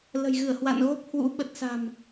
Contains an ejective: no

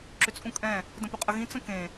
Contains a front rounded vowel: yes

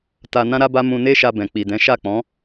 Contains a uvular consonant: no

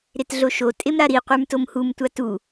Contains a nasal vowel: no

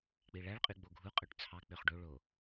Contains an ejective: yes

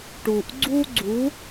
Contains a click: yes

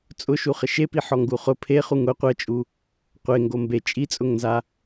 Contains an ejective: yes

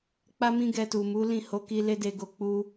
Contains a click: no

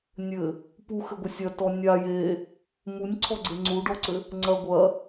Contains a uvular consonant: no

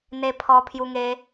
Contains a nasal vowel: no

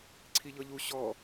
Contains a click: yes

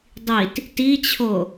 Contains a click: no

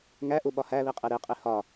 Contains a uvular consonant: yes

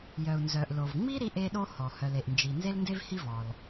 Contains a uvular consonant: no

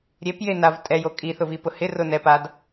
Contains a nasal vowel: no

